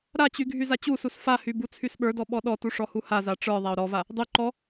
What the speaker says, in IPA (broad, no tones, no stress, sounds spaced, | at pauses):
ɾ a t͡ɕ y ɡʱ y z a t͡ɕ u s u s f a h y b u t͡sʰ y s ɓ ə˞ d ɔ ɓ ɔ ɗ ɔ t u ʂ ɔ h u h a z a ʈ͡ʂ ə˞ ðˤ a ʊ̯ ɾ ɔ v a | dˤ y ǃ ɔ